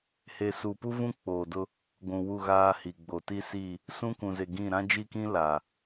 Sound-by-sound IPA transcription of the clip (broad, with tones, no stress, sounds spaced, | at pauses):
h e˨ s u˨ p u˦ v ũ˦ k͡p oː˨ d ʊ˦ | ɡʷ ũ˨ w u˦˨ ɣ aː˦ h i˨ ɡ͡b o˨ t i˦ s i˦˨ | s ũ˦ k ũ˨ z e˨ ɡ ĩ˦˨ ɾ ã˦ d͡ʒ i˦ k ĩ˦ l a˨